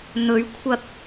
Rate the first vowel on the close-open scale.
mid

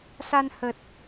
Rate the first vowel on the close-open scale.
open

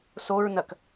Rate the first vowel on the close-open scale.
mid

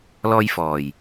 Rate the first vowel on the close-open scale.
mid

